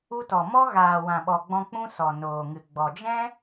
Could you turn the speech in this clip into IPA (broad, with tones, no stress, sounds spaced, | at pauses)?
u˧ t ɔ˨ m ɔ˦ ɣ aː˨ w ã˨ ɓ ɔ˨ ɡ͡b ɔ̃˧ k͡p ũ˦ s ɔ˨ n oː˨ ŋ ɨ˨ ɡ͡b ɔ˨ d͡ʒ ɛ̃˦